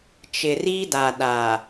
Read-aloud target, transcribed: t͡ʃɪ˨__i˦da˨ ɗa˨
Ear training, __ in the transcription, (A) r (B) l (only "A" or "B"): A